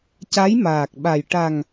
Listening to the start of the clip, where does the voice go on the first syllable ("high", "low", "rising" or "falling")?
rising